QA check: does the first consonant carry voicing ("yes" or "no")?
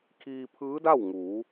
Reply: no